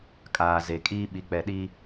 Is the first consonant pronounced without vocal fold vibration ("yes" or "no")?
yes